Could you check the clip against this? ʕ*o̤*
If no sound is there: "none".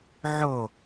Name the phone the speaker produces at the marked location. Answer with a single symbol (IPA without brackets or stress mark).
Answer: o